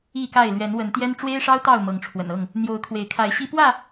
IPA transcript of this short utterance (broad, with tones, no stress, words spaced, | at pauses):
i˥˨ka˥˨ɪ̯ lɥɛ˨˦nwə˨˦nt̪jɛ˦n ʈ͡ʂwe˦ɪ̯ʂɑ˦ʊ̯ t̪ɑ˥˨ʊ̯mɤ˨˦ŋʈ͡ʂʰwə̰˨˩n ɤ˥˨ŋ | n̪jo˨˦ʊ̯kʰwe˨˦ɪ̯kʰa˨˦ɪ̯ɕi˦ pwä˥˨